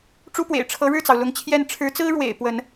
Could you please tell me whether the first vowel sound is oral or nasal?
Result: oral